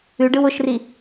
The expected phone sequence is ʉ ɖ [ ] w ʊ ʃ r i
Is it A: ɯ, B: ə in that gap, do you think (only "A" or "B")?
A